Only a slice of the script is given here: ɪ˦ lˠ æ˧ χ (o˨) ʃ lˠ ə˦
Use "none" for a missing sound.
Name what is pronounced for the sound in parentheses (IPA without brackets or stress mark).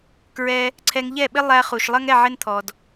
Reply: u˨